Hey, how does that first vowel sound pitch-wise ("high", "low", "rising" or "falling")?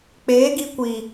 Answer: rising